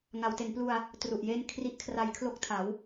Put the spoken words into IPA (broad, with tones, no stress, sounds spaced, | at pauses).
ŋ a˩˦ w t e˩˦ n p l u˧ a̯ | t r u˨˩ ʔ j e˥˩ n kʰ r i˦˥ ʔ kʰ r a˧ j kʰ l o˥˩ k̚ tʰ a˩˦ w